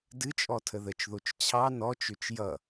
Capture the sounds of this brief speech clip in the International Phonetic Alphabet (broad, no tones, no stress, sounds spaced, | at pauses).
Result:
d ɨ t͡ʃʼ ɔ tʰ ə ð ə t͡ʃ ð o t͡ʃ t͡ɕʰ ɑ n ɔ t͡ʃ ø t͡ʃ j ʌ